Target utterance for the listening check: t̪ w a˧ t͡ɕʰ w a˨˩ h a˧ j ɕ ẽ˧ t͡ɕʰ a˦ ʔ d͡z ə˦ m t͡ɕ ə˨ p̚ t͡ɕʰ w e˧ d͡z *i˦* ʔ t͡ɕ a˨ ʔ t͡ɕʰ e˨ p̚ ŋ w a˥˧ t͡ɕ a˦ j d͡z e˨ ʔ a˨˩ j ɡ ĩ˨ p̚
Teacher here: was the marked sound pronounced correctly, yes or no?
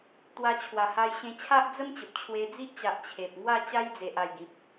yes